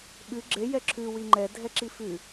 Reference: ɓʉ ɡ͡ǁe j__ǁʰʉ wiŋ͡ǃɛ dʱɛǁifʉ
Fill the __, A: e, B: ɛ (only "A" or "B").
B